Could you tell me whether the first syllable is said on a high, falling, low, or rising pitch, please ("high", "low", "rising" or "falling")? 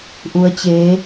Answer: rising